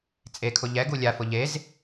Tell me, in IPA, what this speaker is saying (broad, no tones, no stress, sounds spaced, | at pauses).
t͡sʼ e kʰ ʊ ʎ ɛ ɡ u lʲ a f ʊ ʎ e z